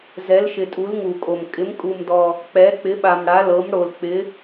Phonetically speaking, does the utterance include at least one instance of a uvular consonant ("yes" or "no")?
no